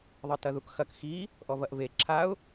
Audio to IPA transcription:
ðˤɘtɐðukxɐk xi | ʔɔvɐʔve ǁʰaʊ̯

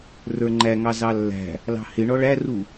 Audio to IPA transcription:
rə˞ŋ͡ǃæŋɑ zɑlːæ̤ | lɑ̤hɪ ɳɔɭæru

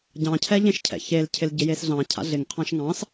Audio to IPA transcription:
ɟɑ̃cʰɛʎẽʃ cʰɛ̰çelcʰɪl ɟɪjesɮɑ̃ cʰa̰ɮɪŋqʰɑ̃ʃ ŋɑ̃s

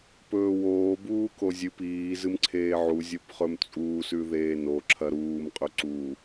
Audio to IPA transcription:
pɵːwoː buːkozʲɨp iː zɨmǀʰeːʕu zʲopχɵmt͡sʼuːs ʉðeːno ǁʰɐɾuːm qʼɵǀu

